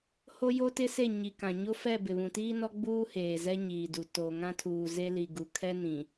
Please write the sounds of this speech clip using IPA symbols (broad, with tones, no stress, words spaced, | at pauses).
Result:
ho˦jo˦tɪ˦se˦˨ ɲi˨kã˨ ɲo˦fɛ˦˨ bɪ˨βũ˨ tiː˦nɔ˦ ɡ͡buː˦heː˨ zɛ˦ɲiː˨du˨ to˨ ŋã˦tʰuː˨ze˦li˨ ɡu˨kʰɛ˦nĩ˨